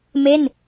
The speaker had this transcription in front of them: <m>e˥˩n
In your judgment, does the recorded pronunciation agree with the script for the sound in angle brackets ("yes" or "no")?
yes